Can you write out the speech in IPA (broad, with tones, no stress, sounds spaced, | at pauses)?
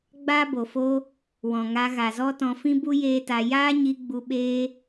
ɡ͡b aː˦ b o˨ f oː˦ | w ɔ̃˨ ŋ a˧ ɣ a˨ z ɔ˦ t ɔ̃˧ f ĩ˦ b u˦ j eː˦ t a˧ j aː˦ ɲ i˧ ɡ͡b u˧ ɓ eː˦